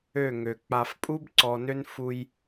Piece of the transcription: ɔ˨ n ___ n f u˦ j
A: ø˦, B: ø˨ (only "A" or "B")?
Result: A